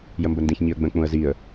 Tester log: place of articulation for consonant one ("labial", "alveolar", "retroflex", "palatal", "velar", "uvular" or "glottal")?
palatal